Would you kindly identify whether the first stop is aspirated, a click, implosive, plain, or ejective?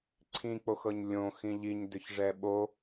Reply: click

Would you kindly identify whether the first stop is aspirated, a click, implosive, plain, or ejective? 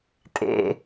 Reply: ejective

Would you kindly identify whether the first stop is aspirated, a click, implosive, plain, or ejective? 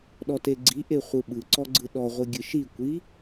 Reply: implosive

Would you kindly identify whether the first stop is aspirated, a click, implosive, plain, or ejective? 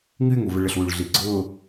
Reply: click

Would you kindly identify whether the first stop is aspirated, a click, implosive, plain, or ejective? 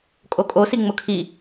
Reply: ejective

